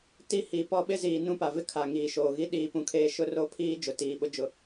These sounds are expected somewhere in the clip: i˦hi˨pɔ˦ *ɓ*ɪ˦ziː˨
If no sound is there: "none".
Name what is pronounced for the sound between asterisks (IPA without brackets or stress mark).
ɓ